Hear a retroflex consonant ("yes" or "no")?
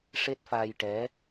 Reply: yes